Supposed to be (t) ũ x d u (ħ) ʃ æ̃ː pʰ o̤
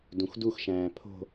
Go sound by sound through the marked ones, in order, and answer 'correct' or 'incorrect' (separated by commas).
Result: incorrect, incorrect